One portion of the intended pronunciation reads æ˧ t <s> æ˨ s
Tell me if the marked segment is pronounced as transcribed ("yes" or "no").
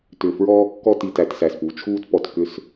yes